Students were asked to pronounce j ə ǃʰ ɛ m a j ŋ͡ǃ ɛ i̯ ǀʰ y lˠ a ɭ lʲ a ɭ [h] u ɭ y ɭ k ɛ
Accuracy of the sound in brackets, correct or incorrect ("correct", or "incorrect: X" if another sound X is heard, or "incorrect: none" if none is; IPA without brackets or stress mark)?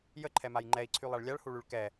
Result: correct